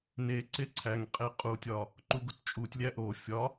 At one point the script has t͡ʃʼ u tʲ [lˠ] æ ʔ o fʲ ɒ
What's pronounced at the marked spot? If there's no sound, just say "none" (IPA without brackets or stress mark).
lʲ